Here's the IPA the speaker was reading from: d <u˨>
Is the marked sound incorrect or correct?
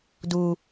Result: correct